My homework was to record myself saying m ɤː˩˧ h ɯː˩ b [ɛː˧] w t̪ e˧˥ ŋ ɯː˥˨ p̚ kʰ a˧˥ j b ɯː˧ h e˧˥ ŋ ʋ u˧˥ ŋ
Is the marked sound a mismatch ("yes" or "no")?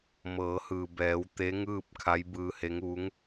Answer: yes